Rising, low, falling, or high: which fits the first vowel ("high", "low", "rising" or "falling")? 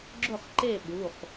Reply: falling